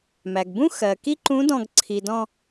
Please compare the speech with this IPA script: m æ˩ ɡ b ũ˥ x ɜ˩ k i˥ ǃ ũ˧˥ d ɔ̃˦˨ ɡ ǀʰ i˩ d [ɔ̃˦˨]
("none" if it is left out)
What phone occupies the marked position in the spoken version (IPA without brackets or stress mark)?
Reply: ɔ̃˦˨